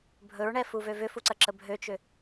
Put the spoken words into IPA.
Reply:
bʱ ɵ ɹ ɳ ɛ f u v ø v ʏ f u ǀ ɐ ǁ ə bʱ ø t͡ʃ ʏ

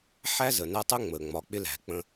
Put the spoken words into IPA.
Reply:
ħ æ˦ z ə˩ n æ˦ tˤ ə˥ ŋ͡m ə˩ ŋ͡m ɒ˩ k͡p ɪ˦ l æ̤˩ k͡p ə̃˦

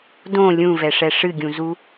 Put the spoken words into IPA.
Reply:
d õ lʲ ũ v ɛ ʂ ɛ ʂ ɨ ɡʲ ũ z u

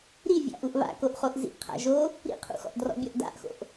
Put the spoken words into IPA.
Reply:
ɾ i vʲ a̰ ʔ u ʔ β a̰ k o ʔ χ o ʔ z ḭ ʔ qʰ a̰ ʒ o | ɾ ḭ qʰ ṵ x ɔ̰ ʔ d r ɔ̰ bʲ ɔ ʔ d a̰ ʔ x o̰ ʔ

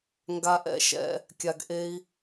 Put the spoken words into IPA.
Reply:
ŋ ɡ a˧ ʔ ɛ̰˧ ʃ ɛ̰˧ | kʲ a˧ ɡ ʔ e˦ i̯

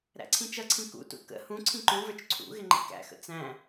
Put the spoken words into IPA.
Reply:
ɾ æ̰ ǀʰ ĩ t͡ʃ ʌ ǀʰ ĩ k ṵ t ṵ k ə̰ h ũ ǀʰ ĩ ǃ ũ v ə˞ t͡ʃ ǀʰ ṵ ɣ ɪ ŋ͡ǃ ḭ k æ̰ x ə̰ t͡s æ̃

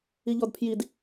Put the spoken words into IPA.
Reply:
i ʎ ɔ d pʰ j i d

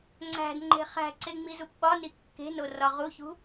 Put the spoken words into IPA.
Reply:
ŋ͡ǀ æ̤ d ŋ͡ǃ e̤ χ æ̤ ǀ e ŋ͡m i z u p ɓ ɒ n i kː e̤ n o r ɒ ʁ u ç ṳ

